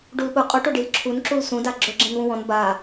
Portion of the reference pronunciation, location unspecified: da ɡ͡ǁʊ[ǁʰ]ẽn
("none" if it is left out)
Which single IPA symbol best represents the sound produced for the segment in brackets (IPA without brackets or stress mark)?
ɡ͡ǁ